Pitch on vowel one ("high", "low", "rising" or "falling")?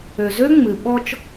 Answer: low